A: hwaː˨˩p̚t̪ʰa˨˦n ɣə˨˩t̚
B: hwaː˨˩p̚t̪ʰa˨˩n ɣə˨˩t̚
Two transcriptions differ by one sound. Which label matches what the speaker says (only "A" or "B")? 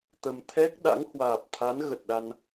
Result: A